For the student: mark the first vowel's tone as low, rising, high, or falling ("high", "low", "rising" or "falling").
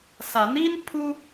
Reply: rising